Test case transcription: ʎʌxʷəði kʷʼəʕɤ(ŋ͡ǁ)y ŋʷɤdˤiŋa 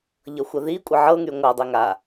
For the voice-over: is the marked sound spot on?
no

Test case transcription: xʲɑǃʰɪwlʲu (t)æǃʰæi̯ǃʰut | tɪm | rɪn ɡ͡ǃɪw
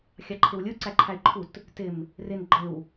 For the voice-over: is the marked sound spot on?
no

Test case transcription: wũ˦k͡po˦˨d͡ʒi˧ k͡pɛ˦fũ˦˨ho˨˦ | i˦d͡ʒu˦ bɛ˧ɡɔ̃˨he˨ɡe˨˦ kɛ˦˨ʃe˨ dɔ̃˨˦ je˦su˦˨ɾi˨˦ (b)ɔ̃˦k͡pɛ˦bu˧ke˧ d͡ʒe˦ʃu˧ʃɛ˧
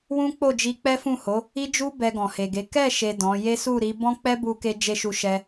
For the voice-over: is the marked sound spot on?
yes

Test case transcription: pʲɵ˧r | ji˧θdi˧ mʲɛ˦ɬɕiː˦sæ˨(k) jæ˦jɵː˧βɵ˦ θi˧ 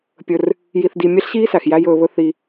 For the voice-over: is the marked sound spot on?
no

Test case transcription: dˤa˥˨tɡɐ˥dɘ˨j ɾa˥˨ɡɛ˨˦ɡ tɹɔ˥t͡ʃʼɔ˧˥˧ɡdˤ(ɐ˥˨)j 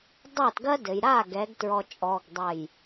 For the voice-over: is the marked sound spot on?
yes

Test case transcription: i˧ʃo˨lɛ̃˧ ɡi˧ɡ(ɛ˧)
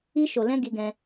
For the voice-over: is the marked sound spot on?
no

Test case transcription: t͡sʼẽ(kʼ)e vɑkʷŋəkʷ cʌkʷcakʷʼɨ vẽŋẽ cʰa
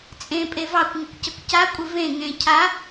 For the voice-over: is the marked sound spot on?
no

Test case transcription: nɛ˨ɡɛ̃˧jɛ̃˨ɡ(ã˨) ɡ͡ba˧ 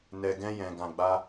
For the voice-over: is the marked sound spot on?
yes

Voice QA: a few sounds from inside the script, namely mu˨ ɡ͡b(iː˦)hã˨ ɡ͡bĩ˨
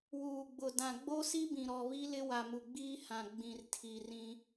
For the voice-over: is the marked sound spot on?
yes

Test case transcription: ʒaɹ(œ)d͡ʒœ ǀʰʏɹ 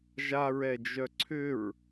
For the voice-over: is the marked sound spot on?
no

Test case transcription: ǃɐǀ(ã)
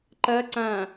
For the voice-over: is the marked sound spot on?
yes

